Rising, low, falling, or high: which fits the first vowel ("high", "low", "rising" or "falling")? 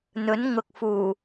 rising